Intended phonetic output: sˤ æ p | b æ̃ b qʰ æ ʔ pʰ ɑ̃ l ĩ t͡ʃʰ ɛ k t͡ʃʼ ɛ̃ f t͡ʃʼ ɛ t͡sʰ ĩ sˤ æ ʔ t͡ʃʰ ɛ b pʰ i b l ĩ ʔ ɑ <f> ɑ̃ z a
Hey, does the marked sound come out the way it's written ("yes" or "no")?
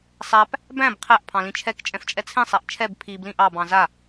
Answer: no